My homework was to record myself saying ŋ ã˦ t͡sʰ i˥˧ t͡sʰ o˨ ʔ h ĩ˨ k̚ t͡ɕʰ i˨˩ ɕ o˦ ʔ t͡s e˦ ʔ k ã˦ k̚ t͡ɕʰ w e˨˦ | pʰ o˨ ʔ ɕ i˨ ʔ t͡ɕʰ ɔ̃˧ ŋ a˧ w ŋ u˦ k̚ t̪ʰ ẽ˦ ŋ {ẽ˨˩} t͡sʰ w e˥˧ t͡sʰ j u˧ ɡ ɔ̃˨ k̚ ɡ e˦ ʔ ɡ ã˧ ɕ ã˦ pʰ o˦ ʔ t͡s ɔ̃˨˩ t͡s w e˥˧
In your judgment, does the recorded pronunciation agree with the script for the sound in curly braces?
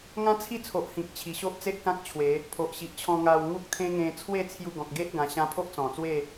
no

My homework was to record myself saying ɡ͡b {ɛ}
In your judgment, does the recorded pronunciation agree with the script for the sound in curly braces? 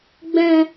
no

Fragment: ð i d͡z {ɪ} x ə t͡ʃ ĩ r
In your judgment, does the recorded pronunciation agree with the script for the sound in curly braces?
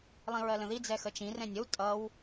no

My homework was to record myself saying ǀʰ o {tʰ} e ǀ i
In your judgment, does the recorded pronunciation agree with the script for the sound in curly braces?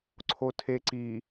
yes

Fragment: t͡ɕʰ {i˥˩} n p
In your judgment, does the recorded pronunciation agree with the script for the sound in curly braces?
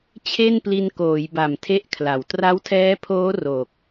no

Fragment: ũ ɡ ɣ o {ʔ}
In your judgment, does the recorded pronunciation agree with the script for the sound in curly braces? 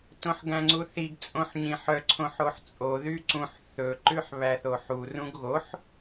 no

